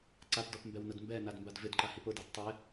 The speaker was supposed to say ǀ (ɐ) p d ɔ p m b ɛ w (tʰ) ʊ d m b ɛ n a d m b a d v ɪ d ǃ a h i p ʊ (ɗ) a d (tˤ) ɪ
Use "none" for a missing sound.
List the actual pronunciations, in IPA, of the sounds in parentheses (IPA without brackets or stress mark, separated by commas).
a, n, d, tˤ